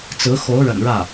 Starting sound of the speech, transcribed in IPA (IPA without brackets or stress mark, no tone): t͡s